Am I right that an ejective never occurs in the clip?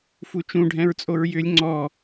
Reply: no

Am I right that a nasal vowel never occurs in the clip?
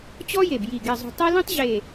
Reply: no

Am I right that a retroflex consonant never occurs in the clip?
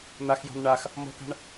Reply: no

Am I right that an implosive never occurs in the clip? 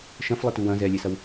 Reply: yes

